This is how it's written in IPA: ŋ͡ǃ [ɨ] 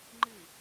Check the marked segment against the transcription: correct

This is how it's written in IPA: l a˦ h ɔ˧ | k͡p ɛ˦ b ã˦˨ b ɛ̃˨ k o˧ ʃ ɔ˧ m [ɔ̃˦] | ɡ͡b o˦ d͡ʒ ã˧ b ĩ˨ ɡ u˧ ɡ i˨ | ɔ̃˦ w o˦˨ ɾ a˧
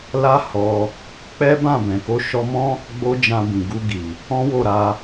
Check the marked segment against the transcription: correct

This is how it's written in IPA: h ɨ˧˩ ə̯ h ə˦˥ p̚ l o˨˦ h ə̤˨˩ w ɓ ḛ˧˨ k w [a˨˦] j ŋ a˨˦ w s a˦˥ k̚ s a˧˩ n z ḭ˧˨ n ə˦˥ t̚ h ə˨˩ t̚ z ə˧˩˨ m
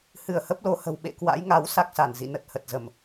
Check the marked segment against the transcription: incorrect: a̰˧˥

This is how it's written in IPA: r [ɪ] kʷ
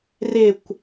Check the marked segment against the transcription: correct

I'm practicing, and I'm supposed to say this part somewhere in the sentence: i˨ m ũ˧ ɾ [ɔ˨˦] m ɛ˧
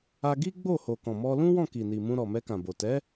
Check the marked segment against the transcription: incorrect: ɔ˨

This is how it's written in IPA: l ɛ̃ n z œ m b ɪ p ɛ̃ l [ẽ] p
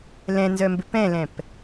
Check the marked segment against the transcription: incorrect: ɛ̃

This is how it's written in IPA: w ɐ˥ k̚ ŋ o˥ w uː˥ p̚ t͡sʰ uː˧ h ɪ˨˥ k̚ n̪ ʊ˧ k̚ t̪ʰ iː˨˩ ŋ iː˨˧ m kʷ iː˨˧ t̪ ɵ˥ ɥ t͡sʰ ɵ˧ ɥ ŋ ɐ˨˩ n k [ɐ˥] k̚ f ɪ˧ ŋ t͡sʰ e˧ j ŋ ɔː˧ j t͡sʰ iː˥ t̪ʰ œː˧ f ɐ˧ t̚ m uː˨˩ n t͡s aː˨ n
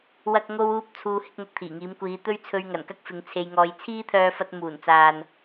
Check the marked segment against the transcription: correct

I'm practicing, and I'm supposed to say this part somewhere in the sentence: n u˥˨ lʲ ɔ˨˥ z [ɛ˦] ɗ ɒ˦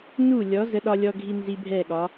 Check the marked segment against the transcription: incorrect: ə˦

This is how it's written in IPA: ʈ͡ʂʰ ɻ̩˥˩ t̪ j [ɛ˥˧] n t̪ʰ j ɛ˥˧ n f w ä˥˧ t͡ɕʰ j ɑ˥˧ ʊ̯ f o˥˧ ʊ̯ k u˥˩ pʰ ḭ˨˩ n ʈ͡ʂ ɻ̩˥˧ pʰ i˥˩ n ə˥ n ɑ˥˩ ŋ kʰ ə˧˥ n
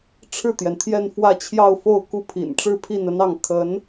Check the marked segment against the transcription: incorrect: ɛ˩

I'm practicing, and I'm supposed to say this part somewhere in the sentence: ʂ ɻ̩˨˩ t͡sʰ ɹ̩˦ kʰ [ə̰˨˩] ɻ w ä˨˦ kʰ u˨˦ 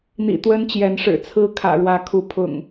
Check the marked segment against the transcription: incorrect: ä̰˨˩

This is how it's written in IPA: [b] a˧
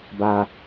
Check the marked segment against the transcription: correct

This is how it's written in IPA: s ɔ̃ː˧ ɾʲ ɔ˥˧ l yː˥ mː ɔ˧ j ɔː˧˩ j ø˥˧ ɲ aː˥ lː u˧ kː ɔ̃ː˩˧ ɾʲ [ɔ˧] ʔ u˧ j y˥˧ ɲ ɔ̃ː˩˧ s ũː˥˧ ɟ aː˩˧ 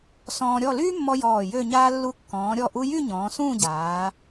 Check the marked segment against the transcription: incorrect: ɔ˧˩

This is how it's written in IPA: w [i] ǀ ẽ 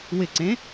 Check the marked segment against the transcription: incorrect: ɪ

